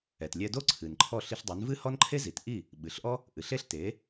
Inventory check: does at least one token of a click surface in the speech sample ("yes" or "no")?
yes